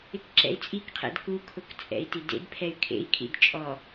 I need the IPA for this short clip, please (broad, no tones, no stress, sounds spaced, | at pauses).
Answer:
ɪ k ǁ ɛ̰ i̯ t͡sʼ i k qʰ ɛ̰ d k u kʰ ʊ k t͡sʼ ɛ̰ i̯ t i d ḛ d pʰ ɛ y̯ kʰ ḛ i̯ kʰ ḭ d t͡ʃʼ ɔ